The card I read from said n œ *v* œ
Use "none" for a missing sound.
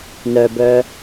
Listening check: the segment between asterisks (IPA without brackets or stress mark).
b